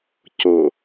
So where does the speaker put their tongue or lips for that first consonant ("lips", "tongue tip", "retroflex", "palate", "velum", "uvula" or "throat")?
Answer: palate